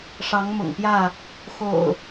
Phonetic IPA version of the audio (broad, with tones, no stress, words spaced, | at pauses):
ʂɑ˨˦ŋmʊ̰˨˩ŋpjä˥˨ | xo̰˨˩ʊ̯